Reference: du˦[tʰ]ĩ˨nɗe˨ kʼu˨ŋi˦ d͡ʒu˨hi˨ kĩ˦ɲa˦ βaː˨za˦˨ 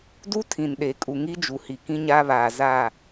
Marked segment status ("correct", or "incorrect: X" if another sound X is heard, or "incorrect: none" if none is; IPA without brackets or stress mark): correct